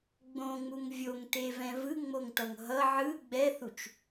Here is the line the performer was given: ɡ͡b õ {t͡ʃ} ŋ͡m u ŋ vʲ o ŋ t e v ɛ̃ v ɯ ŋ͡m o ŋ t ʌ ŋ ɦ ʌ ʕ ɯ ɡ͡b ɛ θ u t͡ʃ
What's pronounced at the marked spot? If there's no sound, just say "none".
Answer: none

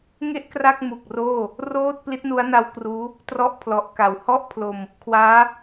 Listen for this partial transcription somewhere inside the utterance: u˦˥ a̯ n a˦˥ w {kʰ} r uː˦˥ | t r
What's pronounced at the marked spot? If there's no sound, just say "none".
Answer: k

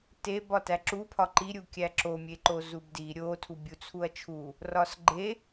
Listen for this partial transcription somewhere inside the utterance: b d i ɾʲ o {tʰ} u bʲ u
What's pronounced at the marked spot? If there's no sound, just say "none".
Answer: tʰ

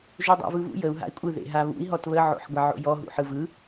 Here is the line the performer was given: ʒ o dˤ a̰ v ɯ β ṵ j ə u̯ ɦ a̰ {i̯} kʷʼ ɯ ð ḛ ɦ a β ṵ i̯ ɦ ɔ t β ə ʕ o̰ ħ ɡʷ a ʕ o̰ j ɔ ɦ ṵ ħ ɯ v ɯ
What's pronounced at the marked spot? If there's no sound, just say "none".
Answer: i̯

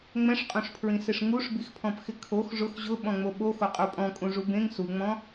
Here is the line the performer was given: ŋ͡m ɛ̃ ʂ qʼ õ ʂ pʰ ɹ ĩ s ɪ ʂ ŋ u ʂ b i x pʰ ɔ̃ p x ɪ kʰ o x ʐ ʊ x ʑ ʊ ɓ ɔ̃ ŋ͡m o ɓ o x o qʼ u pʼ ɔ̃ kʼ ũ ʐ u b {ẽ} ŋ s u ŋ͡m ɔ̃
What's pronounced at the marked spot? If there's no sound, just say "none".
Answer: ẽ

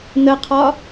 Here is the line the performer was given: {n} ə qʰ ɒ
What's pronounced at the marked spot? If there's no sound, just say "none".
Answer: n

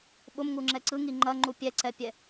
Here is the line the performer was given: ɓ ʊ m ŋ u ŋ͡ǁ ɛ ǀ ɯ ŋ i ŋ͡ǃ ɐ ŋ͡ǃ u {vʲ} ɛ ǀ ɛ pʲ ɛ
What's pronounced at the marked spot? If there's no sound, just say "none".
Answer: pʲ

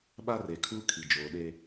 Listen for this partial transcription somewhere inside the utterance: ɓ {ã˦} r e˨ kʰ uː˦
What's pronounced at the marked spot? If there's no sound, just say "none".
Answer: a˦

